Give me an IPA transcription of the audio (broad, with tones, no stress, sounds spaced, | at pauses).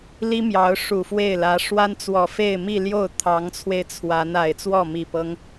l i˥ m j ɑ˧˥ ʊ̯ ʂ u˨˩ f w e˥˩ ɪ̯ l ä˧˥ ʂ w a˥ n t͡s w ɔ˨˩ f e˥˧ ɪ̯ m i˥˧ l j o˥˩ ʊ̯ t̪ʰ ɑ˧˥ ŋ t͡sʰ w e˧ ɪ̯ t͡sʰ w a˧˥ n a˨˩ ɪ̯ t͡s w ɔ˥˩ m i˨˩ p ɤ˦ ŋ